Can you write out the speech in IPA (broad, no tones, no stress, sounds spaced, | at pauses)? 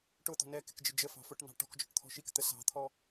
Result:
ʈ ʊ t̪ ɔ̤ n ɛ k ɪ k d͡ʒ ɪ d͡ʒ ə f ɑ̤ f ʊ ʈ n ɑ̤ ʈ ɔ̤ k d͡ʒ ɔ̤ ʈ t̪ʰ ɔ̤ ʃ i k t̪ ə s ɑ̤ t̪ʰ ɔ